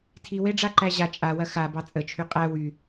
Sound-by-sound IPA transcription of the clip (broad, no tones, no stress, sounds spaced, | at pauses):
tʰ i w e ɖ͡ʐ a ǃ æ ʑ a t͡ʃʼ a w ɐ x a b ɑ t͡sʼ ə t͡ʃʰ y qʼ æ w y